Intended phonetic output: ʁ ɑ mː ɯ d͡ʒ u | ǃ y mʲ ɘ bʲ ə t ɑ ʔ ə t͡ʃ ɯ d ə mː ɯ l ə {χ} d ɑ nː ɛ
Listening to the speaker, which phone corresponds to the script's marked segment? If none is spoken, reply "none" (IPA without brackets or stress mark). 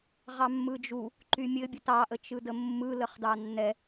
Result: χ